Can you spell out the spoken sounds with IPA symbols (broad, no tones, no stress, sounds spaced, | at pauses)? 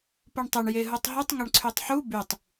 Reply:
p u ɳ tˤ ɘ ɳ j e ɦ u tˤ ɦ y tˤ ŋ ʌ ɳ ǀʰ y tˤ ħ u b y tˤ